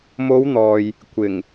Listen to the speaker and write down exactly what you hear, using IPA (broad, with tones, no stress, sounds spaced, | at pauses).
m o˨˧ w n̪ ɔː˨ j | kʷ ɪ˨˩ ŋ